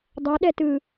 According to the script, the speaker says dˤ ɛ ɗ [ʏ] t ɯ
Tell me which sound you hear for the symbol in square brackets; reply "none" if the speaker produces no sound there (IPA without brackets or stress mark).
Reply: ɛ